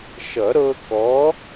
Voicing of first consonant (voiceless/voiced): voiceless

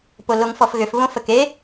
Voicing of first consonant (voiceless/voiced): voiceless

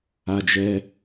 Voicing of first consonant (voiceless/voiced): voiced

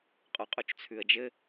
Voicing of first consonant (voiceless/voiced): voiceless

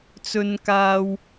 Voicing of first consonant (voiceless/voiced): voiceless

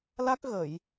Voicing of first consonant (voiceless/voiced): voiced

